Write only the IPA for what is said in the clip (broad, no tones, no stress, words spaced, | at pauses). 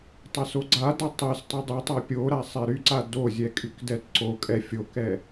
tˤasoɡ͡ǀada tˤɛs tˤydˤytˤa pʲoɾa sˤɛɾyǀa dozʲɛ kʼykdɛtǀokʼɛ fʲokɛ